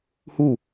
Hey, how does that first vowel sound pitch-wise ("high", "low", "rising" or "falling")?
falling